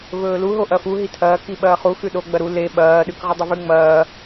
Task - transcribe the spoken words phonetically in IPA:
v ɵː l u ɦ o ʔ ɐ f u ɦ i tʰ ɐː k i ɓ ɐː χ u x ʉ ɗ o ɡ͡b ɐ ɾ u l e ɓ ɐː ɗ ʉ k ʁ ɨ dˤ ɐ v ʉ ŋ͡m ɐː

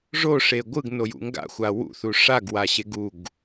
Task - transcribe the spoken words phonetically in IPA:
ʐ o ʂ e ɡʷ ɯ ɡ n o j ṵ ŋ ɡ a̰ xʷ a w ṵ θ u ʂ a ɡ w a ɕ e ɡ u ɡ

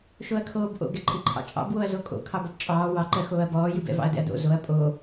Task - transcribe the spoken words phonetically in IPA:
ʃ o ɐ̯ kʰ oː b ʔ o̰ ɡ ɛ ǃʼ ɨ ǃʰ ɑ̰ t͡ʃʼ ɑ̰ b w o ɐ̯ z o kʼ o̰ kʰ ɑ b ɔ b t͡ʃʼ ɑː w ɑ ǃ ɜ x oː ɐ̯ b ɔː j ɨ b ɛ̰ v ɑ̰ ɐ̯ d ɛ̰ ɐ̯ d o̰ z o ɐ̯ pʼ o

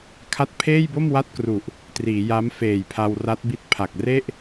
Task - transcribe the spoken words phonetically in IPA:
kʰ a˦˥ t̚ pʰ eː˥˩ j b o˥˩ m w a˥˩ t̚ k r u˨˩ ʔ | t r iː˩˦ j a˦˥ m f eː˨˩ j pʰ a˧ w r a˦˥ t̚ b i˦˥ t̚ pʰ a˨˩ k̚ r e˥˩ ʔ

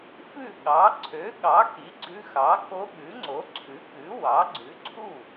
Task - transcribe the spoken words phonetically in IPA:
f ʉ˥˩ ɠ ɑ˩˥ ǀʰ ø˩˥ ɠ ɑ˩˥ k i˩˥ ɡ͡ǀ ʉ˧˥ x ɑ˩˥ k o˧˥ ɠ ʉ˩˥ ŋ͡ǀ o˩˥ ǀʰ ʉ˩˥ k ʉ˩˥ w ɑ˩˥ ɡ͡ǀ ʉ˩˥ ǀʰ u˥˩

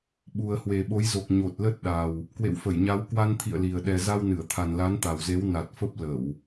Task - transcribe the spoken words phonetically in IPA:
ɓ u˨˩ ə̯ h w e˨˩ ɓ o˨˦ j z o˨˩ k̚ ɲ o˨˩ t̚ l ə˦˥ t̚ ɗ a˨˩ w | k w ḛ˧˨ w f ə˧˩ j ɲ a˨˦ w k w a˧ n t̪ʰ ḭ˧˨ ə̯ l i˨˩ ə̯ ɗ ɛ˨˩ z a˧ w n ɨ˧˩ ə̯ t̪ʰ a˨˩ n l a˨˦ n t̪ a˨˩ w z e˨˦ w n a˨˩ t̚ f ə˦˥ p̚ l ə˧˩˨ w

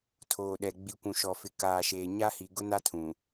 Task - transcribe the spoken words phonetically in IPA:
tʰ oː˨ ɗ ɛ˨ ɡ͡b i˨ kʷ ũ˨ ʃ ɔ˨ f ɪ˨ k aː˨ ʃ eː˨ ɲ a˦ h i˨ ɡ ʊ˦ n a˦ tʰ ũ˨

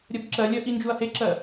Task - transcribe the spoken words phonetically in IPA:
ɾʲ ɜ b ǁ ɜ lʲ ɜ ʔ i n d͡ʒ u ɐ̯ h e ǁ ɜ

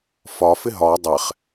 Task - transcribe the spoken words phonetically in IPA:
f ɒ f ɪ ɦ ɒ dˤ ɛ χ

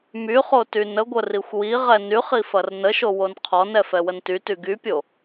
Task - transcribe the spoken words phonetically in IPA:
m y χ o t y n ə ɡʷ ə r i xʷ w i ʁ ɛ n y χ i f ɐ r n ə ʃ o w o n qʰ ɔ n ɛ f ɛ w ə n t y t y ɡ y pʲ o

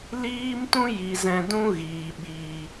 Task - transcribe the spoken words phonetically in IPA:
l iː˦ m t ũ˦ j i˨ z ɛ̃˧ d ũ˦ ɣ iː˨ ɓ iː˨

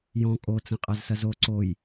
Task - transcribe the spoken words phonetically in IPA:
j ɔ̃ kʼ o t͡s ɐ̃ qʼ a z s ɐ z o ǀ o j

